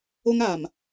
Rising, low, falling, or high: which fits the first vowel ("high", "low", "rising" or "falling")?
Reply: high